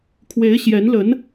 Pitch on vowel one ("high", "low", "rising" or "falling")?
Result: rising